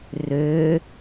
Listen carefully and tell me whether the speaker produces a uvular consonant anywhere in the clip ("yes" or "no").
no